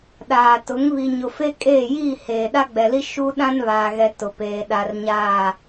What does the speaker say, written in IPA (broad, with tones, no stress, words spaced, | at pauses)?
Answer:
ɗaː˨tʊ˨˦ŋ βi˨ɲʊ˨fe˦ kʼeː˦˨jiː˦˨heː˨ ɗa˦ɡ͡bɛ˨li˦ ʃu˦ ɗã˦nβaː˨ɣɛ˨ tʊ˨peː˨ ɗa˨rɲaː˦˨